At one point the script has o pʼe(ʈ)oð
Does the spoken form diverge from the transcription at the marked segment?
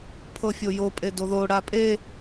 yes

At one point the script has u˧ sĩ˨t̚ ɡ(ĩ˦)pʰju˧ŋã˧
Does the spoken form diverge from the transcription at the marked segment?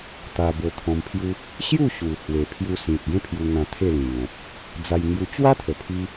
yes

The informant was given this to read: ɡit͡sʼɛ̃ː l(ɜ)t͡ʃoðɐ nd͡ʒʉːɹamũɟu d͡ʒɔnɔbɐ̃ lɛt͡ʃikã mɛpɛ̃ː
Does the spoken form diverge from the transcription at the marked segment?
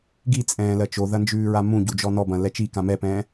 no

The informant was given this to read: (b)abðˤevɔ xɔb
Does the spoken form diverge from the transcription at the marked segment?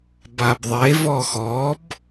no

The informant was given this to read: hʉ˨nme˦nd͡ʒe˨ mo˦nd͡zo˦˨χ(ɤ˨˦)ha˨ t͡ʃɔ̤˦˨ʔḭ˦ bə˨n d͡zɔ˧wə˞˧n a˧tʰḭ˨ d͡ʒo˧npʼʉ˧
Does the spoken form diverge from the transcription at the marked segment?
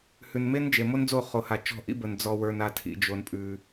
yes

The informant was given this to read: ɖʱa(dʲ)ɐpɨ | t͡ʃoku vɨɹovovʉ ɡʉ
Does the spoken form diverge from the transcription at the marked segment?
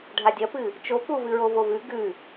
no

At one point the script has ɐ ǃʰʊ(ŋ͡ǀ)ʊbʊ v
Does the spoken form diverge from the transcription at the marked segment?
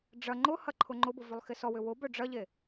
yes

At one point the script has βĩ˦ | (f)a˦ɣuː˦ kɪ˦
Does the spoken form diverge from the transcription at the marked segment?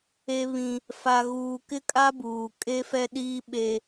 no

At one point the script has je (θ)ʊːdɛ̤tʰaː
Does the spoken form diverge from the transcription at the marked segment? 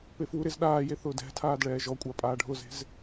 no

